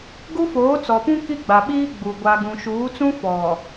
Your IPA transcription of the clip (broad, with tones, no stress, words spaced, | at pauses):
ɡu˦foː˨˦t͡sɔ˨pũ˦ ki˦ɡ͡ba˨ɓiː˦ ɡ͡bu˨ ɡʷa˨ɡũ˨ʃuː˨˦t͡sũ˦ fɔ˨